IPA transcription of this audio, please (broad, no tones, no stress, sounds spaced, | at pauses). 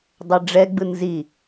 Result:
dˤ ɛ ɖ͡ʐ ɛ ɡ͡b ɯ n z i